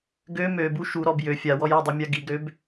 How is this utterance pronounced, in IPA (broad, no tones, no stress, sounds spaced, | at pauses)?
ɡ ø m ø b u ʃ u ɾ ɔ b j ø fʲ a w ɔ j a dˤ a mʲ a ɡ i ɡ ɾ ø b